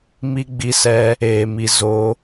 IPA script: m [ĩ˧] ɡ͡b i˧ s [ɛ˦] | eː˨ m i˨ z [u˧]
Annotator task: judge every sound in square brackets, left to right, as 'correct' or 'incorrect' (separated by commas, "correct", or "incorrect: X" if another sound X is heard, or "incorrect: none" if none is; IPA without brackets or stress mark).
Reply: incorrect: i˧, incorrect: ɛ˧, incorrect: o˧